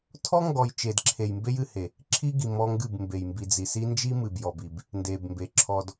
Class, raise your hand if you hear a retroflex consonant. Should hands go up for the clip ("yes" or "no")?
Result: no